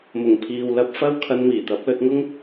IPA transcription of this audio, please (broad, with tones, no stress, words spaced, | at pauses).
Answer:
mʊ˨˩ŋpʰiː˨w lɐ˧p̚fɐ˥w kʰɐ˧nmiː˨˩t̪ɐ˨˥p̚ lɵ˧t̚ŋʊ˥ŋ